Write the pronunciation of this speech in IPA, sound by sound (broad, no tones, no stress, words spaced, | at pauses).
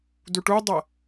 duʈudˤɐ